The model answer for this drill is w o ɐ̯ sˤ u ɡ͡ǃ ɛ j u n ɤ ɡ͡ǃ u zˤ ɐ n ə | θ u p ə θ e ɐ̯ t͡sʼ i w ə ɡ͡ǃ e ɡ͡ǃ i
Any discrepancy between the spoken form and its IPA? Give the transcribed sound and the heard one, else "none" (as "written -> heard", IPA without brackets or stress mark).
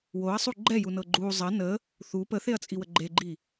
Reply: none